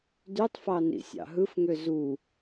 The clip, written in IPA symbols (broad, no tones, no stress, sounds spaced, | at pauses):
d y tˤ f ɑ n ḭ sʲ ɑ̰ ɦ ɯ f ŋ ø z u